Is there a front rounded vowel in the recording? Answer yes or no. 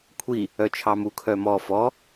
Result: yes